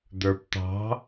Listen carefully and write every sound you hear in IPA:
d̪ ə˞ p t̪ ɑ̤

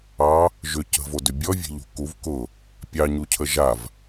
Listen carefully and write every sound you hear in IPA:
ɑ | ʒ ʏ c ə̤ v o d ʏ bʲ ɔ vʲ e̤ ʎ ṳ k u v k ʊ | pʲ ɑ ɲ u cʰ ə ʒ a v

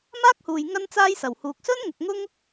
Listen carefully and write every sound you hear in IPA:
m aː˥ k̚ h uː˨ j ŋ ɐ˥ n t͡s aː˥ j s ɐ˨˩ w h uː˨ k̚ s ɵ˥ n ŋ ʊ˨ k̚ ŋ ʊ˥ ŋ

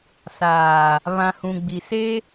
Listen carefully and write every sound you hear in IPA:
s aː˨ | β ã˨ h ũ˨ ɡ͡b i˨ s e˦

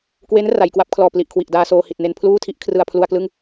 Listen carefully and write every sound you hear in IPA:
k w e˦˥ n r a˩˦ j k w a˦˥ p̚ kʰ l ɔː˨˩ p l i˨˩ ʔ kʰ w i˨˩ ʔ d aː˧ s oː˧ h i˨˩ t̚ n e˧ n pʰ l uː˥˩ tʰ i˥˩ ʔ kʰ r ɯ˧ a̯ pʰ l u˧ a̯ k l ɯ˥˩ ŋ

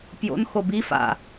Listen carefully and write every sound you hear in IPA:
p j o̰ n x o b i f a̰

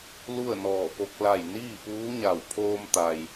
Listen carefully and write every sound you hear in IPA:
l u˥˨ ə̯ n ɔː˧˩ p o˧ k̚ l a˧˩ j n iː˥˨ p uː˧˥ ɲ a˧˩ w pʰ oː˧ m t̪ a˩ j

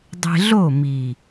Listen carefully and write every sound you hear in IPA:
dˤ e̤˧ ɮ o˦˨ m i˨

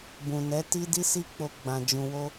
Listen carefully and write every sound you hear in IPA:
b ũ˨ n ɛ˨˦ t i˦ d i˦ s i˦ k͡p o˧ ɡ͡b ã˨ d͡ʒ ũ˨ w o˧

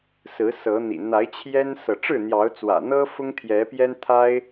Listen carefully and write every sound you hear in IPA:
s ɹ̩˨˦ s ɤ˨˦ n̪ ḭ˨˩ n̪ a˨˦ ɪ̯ t͡ɕʰ j ɛ˦ n s ɤ˨ ʈ͡ʂ ɻ̩˥˨ n̪ j ɑ˨˦ ʊ̯ t͡s w ä̰˨˩ n̪ ɤ˦ f ʊ˦ ŋ t̪ʰ j ɛ˨˦ p j ɛ˦ n t̪ʰ a˦ ɪ̯

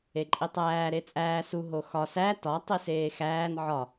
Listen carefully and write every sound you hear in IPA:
e ǃʼ i tˤ æː ɾ e t͡sʼ æː s u ɦ o x ɒ s æ t ɒ tˤ i s eː x æː n ʕ ɒ

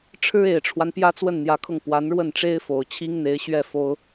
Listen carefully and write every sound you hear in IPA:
ʈ͡ʂʰ ɻ̩˥ e˨˩ ɪ̯ ʈ͡ʂʰ w a˦ n p j ä˥ t͡s w ə˥˩ n n̪ j ä˧˥ kʰ ɤ˧ ŋ p w a˧˥ n ɻ w ə˥˩ n ʈ͡ʂ e˥ ɪ̯ f o˨˩ ʊ̯ t͡ɕʰ i˥ ŋ n̪ e˧˥ ɪ̯ ɕ ɥ ɛ˥˩ f o˥ ʊ̯

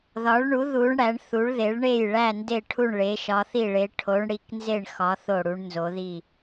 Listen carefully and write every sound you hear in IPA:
ð ɒ˩˧ ɭ ɳ u˩˧ ð u˩˧ ɳ ɽ æ˩˧ ɳ θ u˩˧ ɭ ð e˩˧ ɭ ɳ e˧˩ j ɭ æ˧˩ n d e˧˩ ʈʰ u˧˩ ɳ ɭ e˩˧ ʃ ɒ˩˧ θ i˧˩ ɭ e˩˧ ʈʰ o˩˧ ɳ ɽ i˩˧ k n z e˧˩ ɳ x ɒ˩˧ θ o˧˩ ɽ u˩˧ ɳ n z o˩˧ ð i˧˩

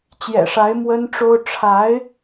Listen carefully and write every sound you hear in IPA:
t͡ɕ j ɛ̰˨˩ ʂ a˧˥ ɪ̯ m w ə˥ n ʈ͡ʂ o˥ ʊ̯ ʈ͡ʂʰ a˧˥ ɪ̯

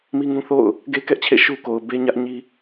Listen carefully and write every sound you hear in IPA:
m i˦ ŋ ũ˦ θ o̰˦˨ ʊ̯ | ɡ e˦ k ɛ˦ ʔ t͡ɕʰ ḛ˦˨ ʃ u˦ k o˨ ʊ̯ b e˦ ɲ ä˦ ʔ ɲ i˦

